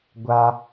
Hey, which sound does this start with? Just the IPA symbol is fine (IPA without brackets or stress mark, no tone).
ɡʷ